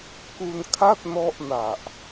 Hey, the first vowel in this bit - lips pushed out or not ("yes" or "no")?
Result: yes